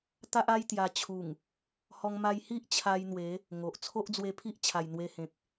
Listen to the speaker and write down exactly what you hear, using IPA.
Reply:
t̪a˦ʔa˦j t̪ja˧ t͡ɕʰu˨˩ŋ | hɔ˧ŋma˧jhi˦ʔt͡ɕʰa˧j n̪we˨˦ | ŋo˨ʔ t͡sʰo˦ʔd͡zwe˧pʰi˦ʔ t͡ɕʰa˨˩jn̪we˧hẽ˨k̚

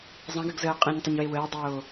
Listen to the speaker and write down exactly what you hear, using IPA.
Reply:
zˤə̃ɡəɡ zəːqʼẽɲtˤəɲ wewəːdˤoː

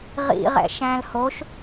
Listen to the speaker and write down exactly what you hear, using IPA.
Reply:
ʁḭʁɛ̰ ʃæ̃lhoʃ

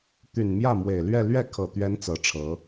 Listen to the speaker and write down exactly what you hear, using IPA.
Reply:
t̪y˨˩nmjä˥˩ mwe˨˩ɪ̯lɥɛ˥˧ lɥɛ˥˩kʰɤ˨˩t̪ɥɛ˧˥n t͡sɤ˧˥ʈ͡ʂʰɤ˧˥

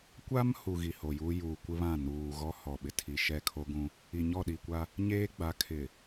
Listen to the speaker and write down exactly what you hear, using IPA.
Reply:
kʷa˦m hu˨ ɣi˨ho˨juː˦ juː˨kʷɪ˦βã˦˨ nuː˨ ɣɔ˦hɔ˨ɓɪ˨ tʰi˨ʃɛ˦˨kʰo˦ɡũ˦ | i˨ɲɔ˦˨ɗi˨kʷa˦ | ɲeː˦ɡ͡ba˨˦kʰɪ˨

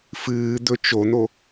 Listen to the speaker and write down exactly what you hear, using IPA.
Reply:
fɨːd̪ɵ t͡ʃon̪o

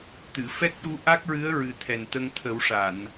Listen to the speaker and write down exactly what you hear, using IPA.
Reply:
t̪ɨ˨˩˨ fɛ˦˥k̚ɗu˧˥ ʔa˦˥k̚ɹɨ˧˥ə̯ɹɨ˨˩ t̪ʰɛ˨˩nt̪ə˧ŋt̪ʰə˨˩˦wʂa˨˩˨n

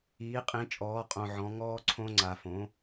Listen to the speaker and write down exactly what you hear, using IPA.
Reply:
iː˩˥qʼĩ˩˥t͡ʃʼɔː˩˥ qʼõ˧ʕɔ̃˩˥ ŋɔː˦˥ǀʰõ˦˥ŋ͡ǀa˧˩˧ fõ˩˥

